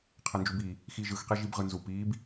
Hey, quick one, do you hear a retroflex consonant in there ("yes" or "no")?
no